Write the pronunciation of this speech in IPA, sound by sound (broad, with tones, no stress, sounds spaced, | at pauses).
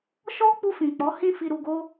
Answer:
ʃ ɔ˦ k͡p u˧ f ĩ˨ k͡p ɔ˨˦ h ĩ˧ f i˧ ɾ u˧ ɡ o˦